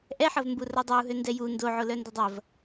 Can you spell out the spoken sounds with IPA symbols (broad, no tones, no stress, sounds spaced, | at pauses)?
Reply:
ʔ ɛ ħ ɐ v m b u r ɐ dˤ o u̯ ɦ ø n d ɛ j u n d o ʕ o l œ n d ɐ dˤ ɐ v